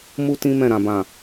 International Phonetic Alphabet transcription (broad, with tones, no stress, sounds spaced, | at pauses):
m u˦ t ĩ˦ m ɛ̃˦˨ ɾ ã˨ b ã˨